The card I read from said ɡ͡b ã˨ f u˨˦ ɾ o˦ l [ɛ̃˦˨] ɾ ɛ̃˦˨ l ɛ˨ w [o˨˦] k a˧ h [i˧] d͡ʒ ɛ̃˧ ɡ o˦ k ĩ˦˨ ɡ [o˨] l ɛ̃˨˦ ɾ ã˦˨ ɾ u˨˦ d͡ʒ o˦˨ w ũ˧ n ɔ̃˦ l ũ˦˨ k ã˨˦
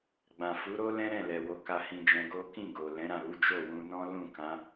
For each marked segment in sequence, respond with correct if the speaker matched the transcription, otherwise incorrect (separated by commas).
incorrect, correct, incorrect, correct